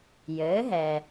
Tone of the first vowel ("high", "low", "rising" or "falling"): rising